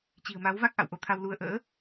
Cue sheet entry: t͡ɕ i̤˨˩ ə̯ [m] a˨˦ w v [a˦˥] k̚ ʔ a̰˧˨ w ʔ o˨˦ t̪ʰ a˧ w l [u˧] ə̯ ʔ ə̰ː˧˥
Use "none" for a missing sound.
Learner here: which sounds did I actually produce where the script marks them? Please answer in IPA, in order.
m, a˦˥, u˧

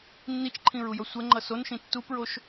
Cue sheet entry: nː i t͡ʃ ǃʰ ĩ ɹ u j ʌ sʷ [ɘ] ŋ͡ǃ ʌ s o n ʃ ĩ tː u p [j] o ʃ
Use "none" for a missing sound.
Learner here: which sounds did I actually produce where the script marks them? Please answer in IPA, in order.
ɛ, ɹ

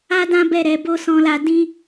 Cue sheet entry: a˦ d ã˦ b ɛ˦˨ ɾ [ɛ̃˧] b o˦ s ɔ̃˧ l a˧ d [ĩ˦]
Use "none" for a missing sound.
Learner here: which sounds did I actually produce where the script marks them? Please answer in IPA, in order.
ɛ˧, ĩ˦

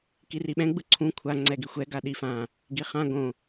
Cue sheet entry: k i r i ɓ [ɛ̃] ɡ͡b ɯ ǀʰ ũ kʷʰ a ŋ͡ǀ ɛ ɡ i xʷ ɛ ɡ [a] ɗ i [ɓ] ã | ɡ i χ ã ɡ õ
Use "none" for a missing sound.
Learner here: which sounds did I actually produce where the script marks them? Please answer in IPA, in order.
ɛ̃, a, f

